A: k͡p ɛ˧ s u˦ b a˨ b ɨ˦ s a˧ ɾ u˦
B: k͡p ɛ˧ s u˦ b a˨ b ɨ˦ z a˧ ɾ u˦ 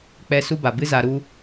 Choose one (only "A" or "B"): B